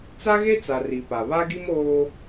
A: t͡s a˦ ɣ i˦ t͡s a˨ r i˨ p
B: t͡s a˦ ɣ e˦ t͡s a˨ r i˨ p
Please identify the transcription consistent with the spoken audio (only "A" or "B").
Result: B